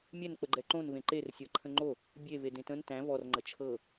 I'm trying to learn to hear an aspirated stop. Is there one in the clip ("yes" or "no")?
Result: yes